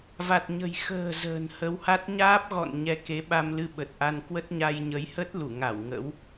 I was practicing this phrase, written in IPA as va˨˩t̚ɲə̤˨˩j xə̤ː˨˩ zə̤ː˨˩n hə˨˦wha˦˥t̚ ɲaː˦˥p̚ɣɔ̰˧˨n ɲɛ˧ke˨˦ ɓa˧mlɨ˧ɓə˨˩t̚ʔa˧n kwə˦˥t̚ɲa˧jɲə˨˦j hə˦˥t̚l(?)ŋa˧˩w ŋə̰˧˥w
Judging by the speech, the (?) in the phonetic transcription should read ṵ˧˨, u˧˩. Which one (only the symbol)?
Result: u˧˩